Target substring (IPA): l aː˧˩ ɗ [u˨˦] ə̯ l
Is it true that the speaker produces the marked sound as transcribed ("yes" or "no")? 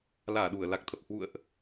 no